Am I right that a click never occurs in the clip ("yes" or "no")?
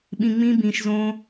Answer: yes